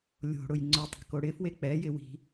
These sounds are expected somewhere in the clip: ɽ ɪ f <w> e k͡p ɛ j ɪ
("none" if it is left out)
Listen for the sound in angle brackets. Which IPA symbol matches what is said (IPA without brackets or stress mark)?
w